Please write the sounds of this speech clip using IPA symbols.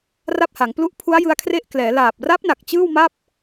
r a˥˩ p̚ h a˩˦ ŋ p l u˦˥ ʔ pʰ u˦˥ a̯ j ɯ˦˥ a̯ kʰ r e˥˩ ʔ k l ɛː˩˦ l aː˨˩ p̚ r a˦˥ p̚ n a˨˩ k̚ t͡ɕ ɯː˥˩ w m a˥˩ p̚

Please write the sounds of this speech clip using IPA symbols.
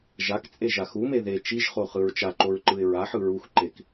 ʒ a k t͡sʼ e ʒ a x u m e ð e t͡ʃ i ʒ χ o χ ɯ ɹ t͡ʃ a ǃ o ɹ ǃ ɯ ɪ̯ ɹ a ħ ɯ ɹ u x ǃ e k

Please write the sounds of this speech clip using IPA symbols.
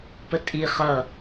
p ə tʼ i χ ʌ

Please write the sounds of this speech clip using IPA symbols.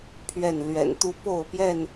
pʰ ɥ ɛ˥˨ n l ɥ ɛ̰˨˩ n t̪ u˦ p o˥˨ ʊ̯ p j ɛ˥˨ n

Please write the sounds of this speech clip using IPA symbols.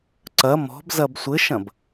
ǀ ɐ m ɔ̤ b z ɐ b sʷ ɘ ʃ ɐ̃ b

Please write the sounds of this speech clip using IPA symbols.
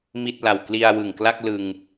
m i˥˩ t̚ l a˨˩ w k l i˧ a̯ w ɯ˨˩ ŋ k l a˥˩ k̚ l ɯ˧ ŋ

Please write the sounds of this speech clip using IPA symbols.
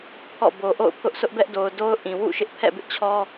pʰ ɔ̰˦˨ b o˨ ʔ o̰˦˨ ʊ̯ pʰ ʊ˦ ʔ sʰ ʊ˦ ʔ b ɛ˦ ʔ d o˨ ʊ̯ d o˦ ʊ̯ ʔ ĩ˨ w ṵ˦˨ ʃ ɪ˦ ʔ pʰ ɛ̰˦˨ b ɪ˦ ʔ t͡ɕʰ ɔ˦

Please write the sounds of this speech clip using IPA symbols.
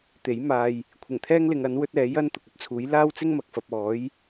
t̪ e˨˥ j m aː˨ j | kʷʰ ɪ˨˩ ŋ t̪ʰ ɛː˥ ŋ l ɪ˨˧ ŋ ɐ˨˥ n w ɵ˥ t̚ ɛː˨˥ j ɐ˥ n t̪ ʊ˨ k̚ ɵ˥ t̚ t͡sʰ uː˨˥ j l aː˥ w t͡s ɪ˥ ŋ m ɐ˨ k̚ f ɐ˨ p̚ ɔː˨˥ j

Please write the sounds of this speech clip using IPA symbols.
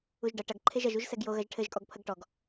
u ʒ ɖ ɐ ʈ ɐ ɡ ǃʰ e ʒ ɐ ʒ u ʒ s ɛ ɡ j o ɣ ɐ ʒ ʈʰ ɘ ʒ kʼ ɔ ɡ pʰ ɐ ɡ ʈ ɔ ɡ

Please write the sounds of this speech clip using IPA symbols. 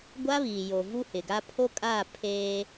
ɡʷ a˦ β iː˨ j o˨ v u˦ h ɪ˨ ɡ a˦ pʰ o˦ kʼ aː˦˨ pʰ eː˦

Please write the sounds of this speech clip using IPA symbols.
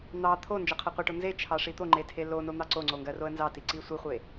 n̪ ɑ t̪ʰ o n d͡ʒ ɜ qʰ ɜ qʷ e ʈ o n z e t͡ʃʰ ɑ ʂ i t̪ o ŋ͡ǃ e tʰ e l o n o n̪ ɑ ǀ o ŋ͡ǀ o ŋ ɡ ɜ r o ə̯ n z ɑ t i ǀ i sʷ i χʷ e

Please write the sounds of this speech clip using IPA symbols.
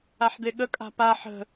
a ħ d̪ e ɠ ə kʼ a̤ p a ħ ə̤

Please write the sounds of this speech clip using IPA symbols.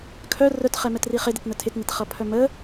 kʰ œ r œ t χ ɛ m ɛ t r i χ ɪ d ɪ t n ə tʰ ɪ t n ɪ t χ ʌ pʰ œ m ə

